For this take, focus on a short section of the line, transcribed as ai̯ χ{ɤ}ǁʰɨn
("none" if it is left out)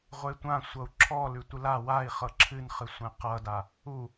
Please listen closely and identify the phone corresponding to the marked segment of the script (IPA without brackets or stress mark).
ɤ